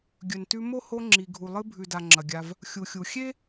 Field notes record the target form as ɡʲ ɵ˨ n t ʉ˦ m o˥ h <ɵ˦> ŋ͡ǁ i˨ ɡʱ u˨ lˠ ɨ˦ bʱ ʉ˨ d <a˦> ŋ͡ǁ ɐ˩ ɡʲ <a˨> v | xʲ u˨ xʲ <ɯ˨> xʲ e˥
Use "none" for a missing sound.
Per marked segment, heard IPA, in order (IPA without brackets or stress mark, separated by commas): o˦, a˨, a˨, u˨